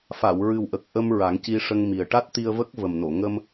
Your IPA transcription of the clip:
f a˨˩˨ w ɹ ɨ˨˩ w ʔ ə˨˩ k̚ ʔ ə˧ m ɹ a˨˩˦ ŋ c i˧ ʂ ə˧ ŋ m i˨˩ ə̯ ʈ a˦˥ t̚ t̪ i˧ ə̯ v ə˦˥ k̚ v ə˨˩ m n o˨˩˨ ŋ ə˧ m

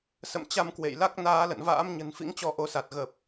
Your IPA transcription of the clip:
s ə̰˧˨ m t͡ɕ a˧ m k w ḛ˧˨ j l a˦˥ k̚ n aː˨˦ l ə̰˧˨ n v a̰ː˧˥ m ɲ ə̤˨˩ n f ḭ˧˥ ŋ t͡ɕ ɔ˧ ʔ o˨˦ s a˨˩ t̚ ɣ ə˨˩ p̚

